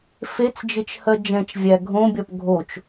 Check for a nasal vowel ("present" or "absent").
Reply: present